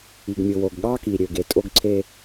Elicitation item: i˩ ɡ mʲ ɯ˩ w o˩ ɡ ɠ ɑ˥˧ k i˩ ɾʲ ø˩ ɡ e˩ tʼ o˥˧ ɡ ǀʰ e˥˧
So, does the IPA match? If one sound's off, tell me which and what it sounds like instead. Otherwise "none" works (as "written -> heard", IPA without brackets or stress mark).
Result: none